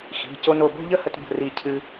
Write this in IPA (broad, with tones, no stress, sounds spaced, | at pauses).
x i̤˩˧˩ c o˧ n o˧˩ b o̤˥˧ ʎ ə˥˧ h ə˧ t b ə̤˧˩ r i˧˩ cʰ ɨ˧